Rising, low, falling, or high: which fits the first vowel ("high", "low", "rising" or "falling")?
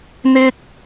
high